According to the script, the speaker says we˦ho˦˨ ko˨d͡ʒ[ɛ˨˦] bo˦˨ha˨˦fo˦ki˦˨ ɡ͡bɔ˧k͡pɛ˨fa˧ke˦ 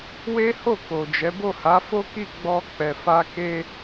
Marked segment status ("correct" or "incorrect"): correct